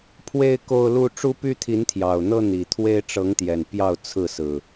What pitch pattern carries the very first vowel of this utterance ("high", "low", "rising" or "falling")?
high